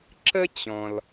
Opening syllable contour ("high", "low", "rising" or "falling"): high